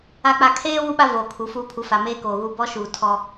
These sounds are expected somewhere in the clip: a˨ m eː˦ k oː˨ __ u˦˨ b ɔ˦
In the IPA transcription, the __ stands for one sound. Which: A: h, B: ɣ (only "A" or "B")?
B